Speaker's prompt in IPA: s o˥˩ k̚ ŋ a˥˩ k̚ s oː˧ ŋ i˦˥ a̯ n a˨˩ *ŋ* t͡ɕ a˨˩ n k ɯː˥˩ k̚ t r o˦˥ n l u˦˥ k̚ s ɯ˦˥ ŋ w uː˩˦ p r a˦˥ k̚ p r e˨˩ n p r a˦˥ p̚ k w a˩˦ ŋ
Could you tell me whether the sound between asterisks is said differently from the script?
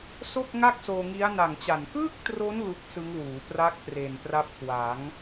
no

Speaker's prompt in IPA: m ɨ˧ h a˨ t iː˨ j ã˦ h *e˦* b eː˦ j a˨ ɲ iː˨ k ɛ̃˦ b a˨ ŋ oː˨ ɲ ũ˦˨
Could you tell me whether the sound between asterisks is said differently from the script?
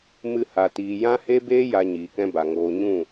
no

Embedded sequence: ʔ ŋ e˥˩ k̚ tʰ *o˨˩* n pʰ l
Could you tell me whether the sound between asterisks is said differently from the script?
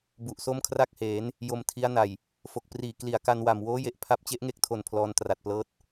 no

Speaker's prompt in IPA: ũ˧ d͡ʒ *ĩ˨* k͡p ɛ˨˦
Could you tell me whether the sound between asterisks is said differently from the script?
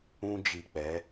yes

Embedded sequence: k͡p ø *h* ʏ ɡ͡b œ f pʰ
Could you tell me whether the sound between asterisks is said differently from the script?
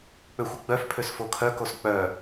yes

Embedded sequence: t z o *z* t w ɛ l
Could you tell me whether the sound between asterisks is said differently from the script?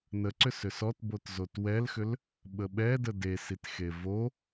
yes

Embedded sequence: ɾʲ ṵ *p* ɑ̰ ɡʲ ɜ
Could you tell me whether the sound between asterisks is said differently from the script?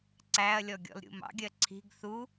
yes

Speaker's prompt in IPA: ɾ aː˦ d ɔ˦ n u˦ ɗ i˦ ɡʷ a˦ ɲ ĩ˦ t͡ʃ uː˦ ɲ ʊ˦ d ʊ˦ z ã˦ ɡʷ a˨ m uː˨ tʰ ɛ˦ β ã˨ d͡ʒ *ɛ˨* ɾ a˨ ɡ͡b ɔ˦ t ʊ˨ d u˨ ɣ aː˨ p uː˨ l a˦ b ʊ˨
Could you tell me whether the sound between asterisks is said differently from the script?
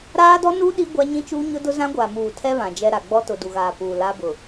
yes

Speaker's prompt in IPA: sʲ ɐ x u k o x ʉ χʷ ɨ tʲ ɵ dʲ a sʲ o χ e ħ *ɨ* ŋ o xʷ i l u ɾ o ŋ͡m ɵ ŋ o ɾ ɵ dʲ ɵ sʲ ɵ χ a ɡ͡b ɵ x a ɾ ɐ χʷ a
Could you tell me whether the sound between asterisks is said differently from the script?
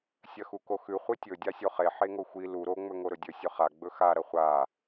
yes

